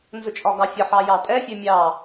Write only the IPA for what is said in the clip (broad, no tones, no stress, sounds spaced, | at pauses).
n z ʊ t͡ʃʼ ɒ ɡ ɑ fʲ ə ħ ɑ j ɑ tʼ ɛ fʲ ɛ mʲ ɑ